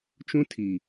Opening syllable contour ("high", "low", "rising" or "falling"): high